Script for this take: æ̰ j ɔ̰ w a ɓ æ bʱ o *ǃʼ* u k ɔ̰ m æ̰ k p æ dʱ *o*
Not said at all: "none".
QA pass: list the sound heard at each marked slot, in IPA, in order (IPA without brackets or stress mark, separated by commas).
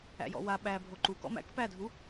ǃ, u